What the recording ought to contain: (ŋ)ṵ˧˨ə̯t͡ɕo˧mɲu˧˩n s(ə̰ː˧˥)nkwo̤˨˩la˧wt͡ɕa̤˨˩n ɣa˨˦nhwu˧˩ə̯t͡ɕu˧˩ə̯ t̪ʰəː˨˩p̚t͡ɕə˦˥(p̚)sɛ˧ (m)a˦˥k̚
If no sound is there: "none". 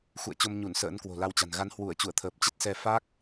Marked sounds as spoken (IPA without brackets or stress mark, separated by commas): x, ə̰ː˧˥, t̚, f